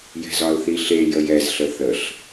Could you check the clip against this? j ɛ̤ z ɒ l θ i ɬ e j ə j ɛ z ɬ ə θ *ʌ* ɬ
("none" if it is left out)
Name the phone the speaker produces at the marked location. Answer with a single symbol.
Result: ə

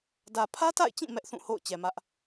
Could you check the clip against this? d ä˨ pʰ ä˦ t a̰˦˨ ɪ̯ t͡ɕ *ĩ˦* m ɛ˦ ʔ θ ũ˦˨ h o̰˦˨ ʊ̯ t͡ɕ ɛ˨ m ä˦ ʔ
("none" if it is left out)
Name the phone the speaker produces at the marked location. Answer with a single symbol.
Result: ĩ˦˨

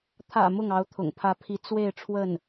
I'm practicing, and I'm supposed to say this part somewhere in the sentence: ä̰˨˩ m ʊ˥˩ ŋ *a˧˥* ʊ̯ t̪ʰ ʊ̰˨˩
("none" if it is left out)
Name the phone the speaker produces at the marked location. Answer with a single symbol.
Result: ɑ˧˥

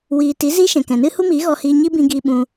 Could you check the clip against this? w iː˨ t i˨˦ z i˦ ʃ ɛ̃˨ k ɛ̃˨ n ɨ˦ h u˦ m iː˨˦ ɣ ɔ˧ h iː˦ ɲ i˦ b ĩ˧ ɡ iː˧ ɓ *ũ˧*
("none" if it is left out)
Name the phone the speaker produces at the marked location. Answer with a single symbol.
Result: ũ˧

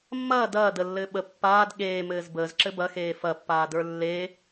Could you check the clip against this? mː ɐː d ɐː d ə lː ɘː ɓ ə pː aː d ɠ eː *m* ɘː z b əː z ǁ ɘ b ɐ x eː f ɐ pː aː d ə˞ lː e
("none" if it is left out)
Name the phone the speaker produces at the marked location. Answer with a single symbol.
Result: m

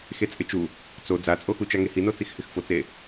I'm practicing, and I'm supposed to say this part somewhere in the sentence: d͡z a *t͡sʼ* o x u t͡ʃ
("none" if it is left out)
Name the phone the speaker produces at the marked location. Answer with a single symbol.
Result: t͡sʼ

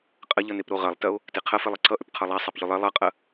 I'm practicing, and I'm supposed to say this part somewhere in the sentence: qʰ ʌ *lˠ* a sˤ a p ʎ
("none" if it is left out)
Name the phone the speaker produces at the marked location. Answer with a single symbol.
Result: lˠ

